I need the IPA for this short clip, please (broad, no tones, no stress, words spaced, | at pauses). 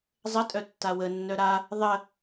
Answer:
zˤətʼœ tːawə nːœɾa | ðˤə